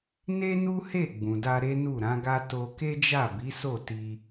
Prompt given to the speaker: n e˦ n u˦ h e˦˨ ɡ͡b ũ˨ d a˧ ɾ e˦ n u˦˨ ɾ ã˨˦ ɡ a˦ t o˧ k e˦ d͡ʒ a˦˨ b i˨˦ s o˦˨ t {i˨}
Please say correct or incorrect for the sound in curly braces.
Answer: incorrect